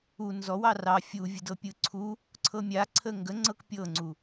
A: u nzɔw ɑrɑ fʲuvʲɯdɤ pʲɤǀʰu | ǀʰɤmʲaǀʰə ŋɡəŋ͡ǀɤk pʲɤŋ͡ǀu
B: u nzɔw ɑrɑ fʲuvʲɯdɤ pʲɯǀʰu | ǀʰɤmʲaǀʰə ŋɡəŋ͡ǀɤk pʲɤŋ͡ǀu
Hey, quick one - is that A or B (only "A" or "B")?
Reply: B